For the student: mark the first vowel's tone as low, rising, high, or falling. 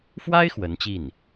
high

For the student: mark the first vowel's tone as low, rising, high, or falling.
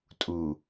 low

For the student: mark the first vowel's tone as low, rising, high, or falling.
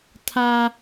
high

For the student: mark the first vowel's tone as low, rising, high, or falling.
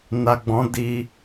low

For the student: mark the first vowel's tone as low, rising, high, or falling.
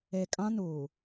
low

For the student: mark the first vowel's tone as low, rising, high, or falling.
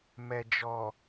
low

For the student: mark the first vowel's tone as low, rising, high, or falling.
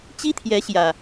high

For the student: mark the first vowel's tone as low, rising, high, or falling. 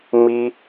high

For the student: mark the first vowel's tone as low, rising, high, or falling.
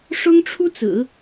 high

